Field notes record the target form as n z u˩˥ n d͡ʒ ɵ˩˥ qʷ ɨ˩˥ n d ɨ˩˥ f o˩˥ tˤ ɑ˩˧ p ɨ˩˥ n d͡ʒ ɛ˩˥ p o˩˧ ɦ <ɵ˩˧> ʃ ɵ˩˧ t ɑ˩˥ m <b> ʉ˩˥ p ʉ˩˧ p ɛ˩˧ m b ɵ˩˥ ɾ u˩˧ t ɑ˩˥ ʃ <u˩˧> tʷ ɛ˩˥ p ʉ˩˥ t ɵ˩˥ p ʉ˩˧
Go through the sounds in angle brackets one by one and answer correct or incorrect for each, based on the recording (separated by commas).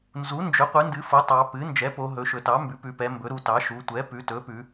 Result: correct, correct, correct